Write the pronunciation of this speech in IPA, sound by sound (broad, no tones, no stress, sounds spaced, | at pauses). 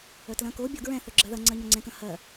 œ t l ɐ̃ k o bʲ o ɡ ɹ ɛ̃ θ œ ɡ͡ǁ ɜ ð ɐ ŋ͡ǀ ɜ ɲ œ ŋ͡ǀ ɛ̃ k ɐ̃ h ɜ